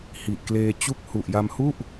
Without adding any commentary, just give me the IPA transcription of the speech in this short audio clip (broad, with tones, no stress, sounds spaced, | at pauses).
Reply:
h i˨˩ ʔ k l eː˧ t͡ɕ u˦˥ k̚ h u˨˩ ʔ j a˧ m h u˥˩ ʔ